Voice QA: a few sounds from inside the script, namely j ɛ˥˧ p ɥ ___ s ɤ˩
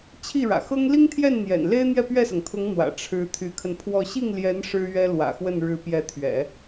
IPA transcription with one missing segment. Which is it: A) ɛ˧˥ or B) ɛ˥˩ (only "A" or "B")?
B